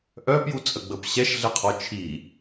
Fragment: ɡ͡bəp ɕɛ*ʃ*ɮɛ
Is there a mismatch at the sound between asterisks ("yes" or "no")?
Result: no